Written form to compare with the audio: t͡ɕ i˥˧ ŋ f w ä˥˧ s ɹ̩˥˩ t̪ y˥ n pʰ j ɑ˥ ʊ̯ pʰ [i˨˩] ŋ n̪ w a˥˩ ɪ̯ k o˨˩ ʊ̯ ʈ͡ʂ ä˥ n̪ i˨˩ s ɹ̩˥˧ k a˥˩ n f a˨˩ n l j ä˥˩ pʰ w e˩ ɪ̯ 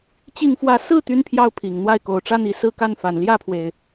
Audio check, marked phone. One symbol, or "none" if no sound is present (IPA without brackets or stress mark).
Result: i˨˩